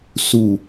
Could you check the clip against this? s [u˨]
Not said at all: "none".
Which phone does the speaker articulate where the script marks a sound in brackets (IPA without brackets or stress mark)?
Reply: u˨